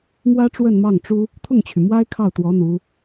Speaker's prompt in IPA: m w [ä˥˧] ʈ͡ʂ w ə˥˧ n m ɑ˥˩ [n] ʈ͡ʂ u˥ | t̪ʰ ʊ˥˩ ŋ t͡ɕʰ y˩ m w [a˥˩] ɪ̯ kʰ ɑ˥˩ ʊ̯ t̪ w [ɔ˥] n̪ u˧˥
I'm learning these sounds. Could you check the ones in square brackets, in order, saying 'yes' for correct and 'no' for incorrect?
no, no, no, no

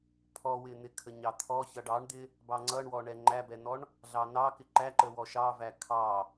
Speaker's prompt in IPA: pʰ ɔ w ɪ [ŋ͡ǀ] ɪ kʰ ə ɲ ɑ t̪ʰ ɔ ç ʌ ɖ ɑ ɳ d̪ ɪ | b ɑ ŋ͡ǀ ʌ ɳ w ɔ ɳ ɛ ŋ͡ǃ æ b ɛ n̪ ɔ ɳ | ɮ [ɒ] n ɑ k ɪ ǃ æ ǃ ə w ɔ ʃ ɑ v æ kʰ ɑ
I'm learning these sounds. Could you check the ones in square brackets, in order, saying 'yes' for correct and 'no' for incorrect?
no, no

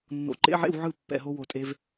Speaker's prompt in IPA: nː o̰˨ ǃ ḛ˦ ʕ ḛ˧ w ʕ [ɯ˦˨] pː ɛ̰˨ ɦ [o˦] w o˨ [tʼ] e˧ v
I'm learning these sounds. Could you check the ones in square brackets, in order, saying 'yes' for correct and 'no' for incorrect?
yes, no, yes

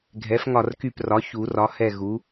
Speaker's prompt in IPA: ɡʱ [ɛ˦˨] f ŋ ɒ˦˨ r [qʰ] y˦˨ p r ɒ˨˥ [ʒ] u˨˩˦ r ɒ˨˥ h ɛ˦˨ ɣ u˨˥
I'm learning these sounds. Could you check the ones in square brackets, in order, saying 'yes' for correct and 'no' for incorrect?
no, no, no

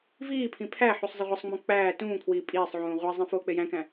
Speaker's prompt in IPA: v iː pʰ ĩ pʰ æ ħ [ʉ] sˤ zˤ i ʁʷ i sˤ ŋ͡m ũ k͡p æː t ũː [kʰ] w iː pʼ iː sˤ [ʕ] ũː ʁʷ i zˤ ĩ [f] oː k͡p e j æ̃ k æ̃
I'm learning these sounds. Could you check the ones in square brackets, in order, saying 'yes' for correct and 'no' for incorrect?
no, yes, yes, yes

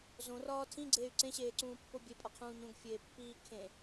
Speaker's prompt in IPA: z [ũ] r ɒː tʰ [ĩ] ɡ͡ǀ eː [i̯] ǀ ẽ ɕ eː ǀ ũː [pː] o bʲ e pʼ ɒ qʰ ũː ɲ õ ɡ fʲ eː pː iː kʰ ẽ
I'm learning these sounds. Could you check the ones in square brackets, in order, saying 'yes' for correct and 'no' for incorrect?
no, yes, no, yes

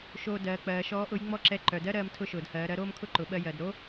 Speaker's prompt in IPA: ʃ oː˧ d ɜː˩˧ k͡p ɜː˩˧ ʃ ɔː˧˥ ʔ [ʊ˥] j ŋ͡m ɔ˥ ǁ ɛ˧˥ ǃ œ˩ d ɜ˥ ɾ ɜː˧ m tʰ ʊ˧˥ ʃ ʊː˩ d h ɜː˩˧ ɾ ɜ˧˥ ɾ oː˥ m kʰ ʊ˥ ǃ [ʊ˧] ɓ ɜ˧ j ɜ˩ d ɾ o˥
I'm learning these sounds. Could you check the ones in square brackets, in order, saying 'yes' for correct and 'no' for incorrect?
no, no

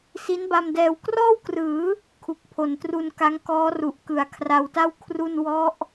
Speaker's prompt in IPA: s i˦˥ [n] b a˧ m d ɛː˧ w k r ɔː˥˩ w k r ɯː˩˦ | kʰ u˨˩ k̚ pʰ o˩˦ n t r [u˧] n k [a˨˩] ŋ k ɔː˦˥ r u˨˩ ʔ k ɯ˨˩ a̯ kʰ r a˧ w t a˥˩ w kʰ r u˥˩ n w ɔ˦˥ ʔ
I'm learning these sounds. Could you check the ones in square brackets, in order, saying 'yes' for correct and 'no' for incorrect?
yes, yes, no

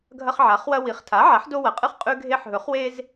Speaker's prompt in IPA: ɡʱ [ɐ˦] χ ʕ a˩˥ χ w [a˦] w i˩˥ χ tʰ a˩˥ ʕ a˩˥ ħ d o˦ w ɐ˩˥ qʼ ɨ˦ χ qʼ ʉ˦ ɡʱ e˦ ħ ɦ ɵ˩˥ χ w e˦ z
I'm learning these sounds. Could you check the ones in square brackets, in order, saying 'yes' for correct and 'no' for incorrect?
yes, no

